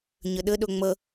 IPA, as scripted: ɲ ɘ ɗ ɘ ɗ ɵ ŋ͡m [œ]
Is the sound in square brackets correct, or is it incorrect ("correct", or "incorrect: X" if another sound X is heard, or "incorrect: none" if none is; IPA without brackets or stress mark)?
incorrect: ə